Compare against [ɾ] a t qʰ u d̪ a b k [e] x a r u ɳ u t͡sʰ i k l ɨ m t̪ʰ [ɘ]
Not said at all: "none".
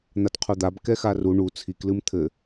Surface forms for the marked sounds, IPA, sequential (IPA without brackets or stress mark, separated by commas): n̪, ɛ, ɘ